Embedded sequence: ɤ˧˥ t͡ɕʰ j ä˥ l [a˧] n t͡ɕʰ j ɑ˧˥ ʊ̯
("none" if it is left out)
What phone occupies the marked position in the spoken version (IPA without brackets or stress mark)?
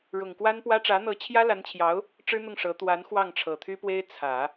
a˧˥